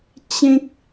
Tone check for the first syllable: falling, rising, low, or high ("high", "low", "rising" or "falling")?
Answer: high